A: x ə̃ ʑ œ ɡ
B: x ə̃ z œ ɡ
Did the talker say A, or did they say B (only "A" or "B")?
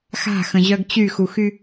A